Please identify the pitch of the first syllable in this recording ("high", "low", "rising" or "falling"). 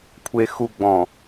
low